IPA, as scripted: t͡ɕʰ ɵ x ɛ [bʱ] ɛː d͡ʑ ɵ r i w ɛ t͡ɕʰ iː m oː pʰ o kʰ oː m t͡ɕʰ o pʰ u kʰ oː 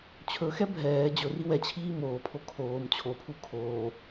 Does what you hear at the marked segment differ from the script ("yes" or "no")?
no